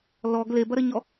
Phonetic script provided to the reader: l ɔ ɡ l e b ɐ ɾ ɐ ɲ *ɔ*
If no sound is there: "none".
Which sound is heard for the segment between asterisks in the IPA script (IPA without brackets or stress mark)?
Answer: ɔ